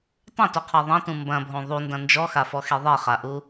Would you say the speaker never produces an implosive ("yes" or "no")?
yes